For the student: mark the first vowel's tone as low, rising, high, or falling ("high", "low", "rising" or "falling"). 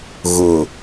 low